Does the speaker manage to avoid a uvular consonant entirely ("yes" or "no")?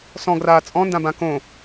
yes